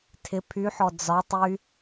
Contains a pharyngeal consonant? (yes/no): yes